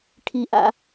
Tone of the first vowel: low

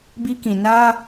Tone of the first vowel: high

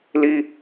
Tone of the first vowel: high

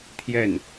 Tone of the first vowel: falling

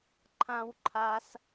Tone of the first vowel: high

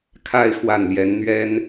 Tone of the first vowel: falling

